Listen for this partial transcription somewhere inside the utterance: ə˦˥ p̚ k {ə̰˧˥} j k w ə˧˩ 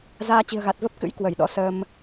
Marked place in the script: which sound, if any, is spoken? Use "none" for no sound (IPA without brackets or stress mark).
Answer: ɨ̰˧˥